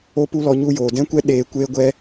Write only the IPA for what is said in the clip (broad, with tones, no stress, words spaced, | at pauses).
o˦pu˦lɔ˧ ɲu˧joː˨dɛ̃˦kʷɛ˦ ɗeː˧ kʷeː˦ɡʷɛ˦